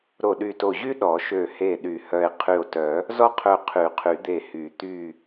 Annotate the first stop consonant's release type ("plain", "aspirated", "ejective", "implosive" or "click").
implosive